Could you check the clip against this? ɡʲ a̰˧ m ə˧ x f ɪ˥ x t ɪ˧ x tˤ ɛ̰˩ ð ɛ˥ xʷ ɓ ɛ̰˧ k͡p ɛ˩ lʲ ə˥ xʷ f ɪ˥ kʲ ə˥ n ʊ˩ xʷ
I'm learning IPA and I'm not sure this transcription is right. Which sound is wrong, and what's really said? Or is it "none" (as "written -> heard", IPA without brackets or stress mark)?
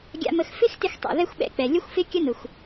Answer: none